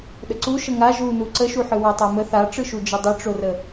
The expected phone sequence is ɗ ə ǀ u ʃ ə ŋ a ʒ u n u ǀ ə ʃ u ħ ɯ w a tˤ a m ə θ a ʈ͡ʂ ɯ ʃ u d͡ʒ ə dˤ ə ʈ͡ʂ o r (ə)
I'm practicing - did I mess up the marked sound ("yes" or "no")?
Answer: no